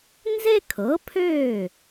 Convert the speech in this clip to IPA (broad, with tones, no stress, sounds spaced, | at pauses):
n z e˥ kʰ ɤ˩˥ pʰ øː˥˩